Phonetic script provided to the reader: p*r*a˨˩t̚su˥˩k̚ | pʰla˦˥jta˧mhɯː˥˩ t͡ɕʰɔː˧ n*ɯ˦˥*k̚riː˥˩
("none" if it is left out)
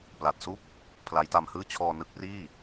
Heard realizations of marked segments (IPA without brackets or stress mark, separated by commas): l, ɯ˦˥